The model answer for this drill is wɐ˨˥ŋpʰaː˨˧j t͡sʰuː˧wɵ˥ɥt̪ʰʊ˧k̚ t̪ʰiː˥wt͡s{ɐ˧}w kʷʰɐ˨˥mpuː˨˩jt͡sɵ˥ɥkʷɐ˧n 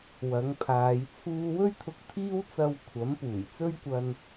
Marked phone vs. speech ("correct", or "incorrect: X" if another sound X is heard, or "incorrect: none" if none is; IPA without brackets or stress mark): correct